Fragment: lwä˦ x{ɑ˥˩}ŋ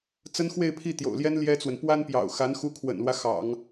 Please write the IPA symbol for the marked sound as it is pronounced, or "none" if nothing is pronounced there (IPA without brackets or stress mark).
ɑ̰˨˩˦